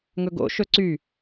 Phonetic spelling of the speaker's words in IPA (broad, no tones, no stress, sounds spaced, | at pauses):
ŋ ɵ ɡ o̰ ʃ ɵ ǀ y